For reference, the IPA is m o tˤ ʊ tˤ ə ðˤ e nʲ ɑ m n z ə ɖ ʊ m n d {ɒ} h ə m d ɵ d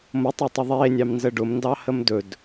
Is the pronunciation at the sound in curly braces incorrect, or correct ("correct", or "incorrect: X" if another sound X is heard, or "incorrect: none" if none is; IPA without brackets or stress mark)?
incorrect: ɑ